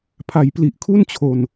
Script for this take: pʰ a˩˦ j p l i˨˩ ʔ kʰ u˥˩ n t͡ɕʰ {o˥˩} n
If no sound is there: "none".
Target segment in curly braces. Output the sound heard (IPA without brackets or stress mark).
o˨˩